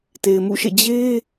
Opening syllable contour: low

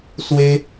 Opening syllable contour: high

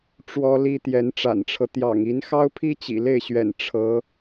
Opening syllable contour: high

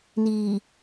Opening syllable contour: low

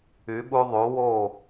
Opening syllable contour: rising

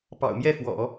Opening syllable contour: low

